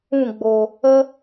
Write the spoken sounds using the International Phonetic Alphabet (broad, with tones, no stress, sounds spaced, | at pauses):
ũ˦˨ ɡ͡b o˨ | ə˦